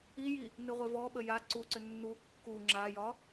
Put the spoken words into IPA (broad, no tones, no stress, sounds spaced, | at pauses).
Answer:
i j i | n ɨ ʁʷ e v ɔ ɓ ə j a ǀ u ǀ ʏ nː u kː u ŋ͡ǁ a j ɒ